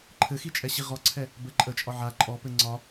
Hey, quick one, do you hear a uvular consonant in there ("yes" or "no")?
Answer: yes